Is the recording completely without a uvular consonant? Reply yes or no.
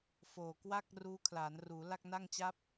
yes